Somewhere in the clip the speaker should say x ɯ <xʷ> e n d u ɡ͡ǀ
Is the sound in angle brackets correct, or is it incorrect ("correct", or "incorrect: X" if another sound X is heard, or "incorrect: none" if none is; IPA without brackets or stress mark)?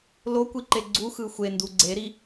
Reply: correct